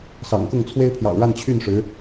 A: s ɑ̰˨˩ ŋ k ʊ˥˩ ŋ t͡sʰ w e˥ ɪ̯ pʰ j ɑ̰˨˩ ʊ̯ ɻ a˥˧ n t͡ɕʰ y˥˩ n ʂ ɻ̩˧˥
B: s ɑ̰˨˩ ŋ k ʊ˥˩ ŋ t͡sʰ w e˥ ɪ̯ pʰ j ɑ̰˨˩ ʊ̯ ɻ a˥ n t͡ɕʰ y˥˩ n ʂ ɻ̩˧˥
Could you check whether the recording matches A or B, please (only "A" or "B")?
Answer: A